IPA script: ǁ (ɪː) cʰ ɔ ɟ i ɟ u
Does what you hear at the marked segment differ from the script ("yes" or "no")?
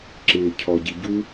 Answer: no